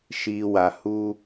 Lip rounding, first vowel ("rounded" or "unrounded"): unrounded